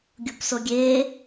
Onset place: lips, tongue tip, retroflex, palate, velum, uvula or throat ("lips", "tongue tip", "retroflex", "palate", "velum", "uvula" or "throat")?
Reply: velum